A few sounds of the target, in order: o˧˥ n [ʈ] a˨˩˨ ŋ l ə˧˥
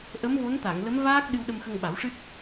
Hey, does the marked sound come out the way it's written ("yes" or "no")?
no